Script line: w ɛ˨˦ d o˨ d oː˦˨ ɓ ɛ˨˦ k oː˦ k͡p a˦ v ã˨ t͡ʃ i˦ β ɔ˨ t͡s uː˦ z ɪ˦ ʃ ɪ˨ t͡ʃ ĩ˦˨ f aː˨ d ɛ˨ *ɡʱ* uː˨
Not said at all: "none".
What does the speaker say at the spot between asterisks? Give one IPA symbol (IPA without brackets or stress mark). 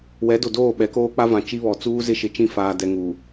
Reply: ŋ